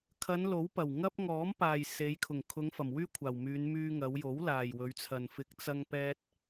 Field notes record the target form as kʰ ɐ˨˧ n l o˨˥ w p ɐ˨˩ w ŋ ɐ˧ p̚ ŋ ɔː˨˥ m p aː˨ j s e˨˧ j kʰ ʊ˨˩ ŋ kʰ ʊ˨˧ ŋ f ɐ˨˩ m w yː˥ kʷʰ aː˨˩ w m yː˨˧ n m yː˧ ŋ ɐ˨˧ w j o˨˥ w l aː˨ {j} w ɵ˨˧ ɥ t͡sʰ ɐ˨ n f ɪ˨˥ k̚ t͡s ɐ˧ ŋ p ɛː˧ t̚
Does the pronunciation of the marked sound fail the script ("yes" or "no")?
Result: no